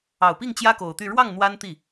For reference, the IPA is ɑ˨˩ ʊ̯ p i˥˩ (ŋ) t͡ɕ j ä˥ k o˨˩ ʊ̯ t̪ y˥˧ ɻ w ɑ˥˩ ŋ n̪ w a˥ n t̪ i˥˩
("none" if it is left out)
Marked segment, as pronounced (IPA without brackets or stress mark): ŋ